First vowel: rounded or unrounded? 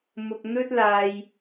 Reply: rounded